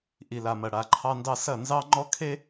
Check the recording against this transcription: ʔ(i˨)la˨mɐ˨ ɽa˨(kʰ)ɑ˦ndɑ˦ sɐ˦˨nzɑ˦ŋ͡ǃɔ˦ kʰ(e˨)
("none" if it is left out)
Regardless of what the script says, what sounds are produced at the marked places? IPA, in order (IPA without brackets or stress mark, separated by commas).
i˨, ǃʰ, e˦